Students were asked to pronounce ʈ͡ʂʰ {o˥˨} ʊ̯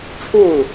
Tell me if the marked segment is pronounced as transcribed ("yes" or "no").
yes